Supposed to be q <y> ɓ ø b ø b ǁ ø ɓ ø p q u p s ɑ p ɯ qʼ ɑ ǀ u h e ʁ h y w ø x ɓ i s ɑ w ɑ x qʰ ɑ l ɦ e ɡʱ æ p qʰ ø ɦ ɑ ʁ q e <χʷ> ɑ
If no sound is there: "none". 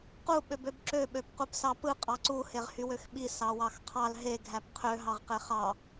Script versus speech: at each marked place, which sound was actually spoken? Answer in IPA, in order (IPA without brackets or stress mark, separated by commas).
u, χ